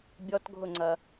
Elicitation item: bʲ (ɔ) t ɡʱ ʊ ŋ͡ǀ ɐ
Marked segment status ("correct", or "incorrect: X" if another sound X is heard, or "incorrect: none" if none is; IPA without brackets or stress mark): correct